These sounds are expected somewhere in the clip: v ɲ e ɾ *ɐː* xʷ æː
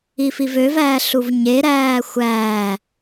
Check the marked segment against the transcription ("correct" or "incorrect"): incorrect